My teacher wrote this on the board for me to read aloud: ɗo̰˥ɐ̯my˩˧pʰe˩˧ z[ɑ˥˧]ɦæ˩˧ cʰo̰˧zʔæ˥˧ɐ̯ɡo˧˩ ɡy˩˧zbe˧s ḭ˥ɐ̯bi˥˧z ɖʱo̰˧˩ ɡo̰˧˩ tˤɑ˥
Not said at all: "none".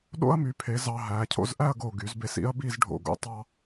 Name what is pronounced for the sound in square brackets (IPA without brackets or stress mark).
ɑ˧